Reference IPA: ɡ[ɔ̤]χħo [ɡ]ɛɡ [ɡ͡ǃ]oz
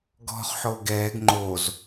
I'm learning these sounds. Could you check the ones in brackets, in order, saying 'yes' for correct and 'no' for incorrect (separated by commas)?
yes, yes, no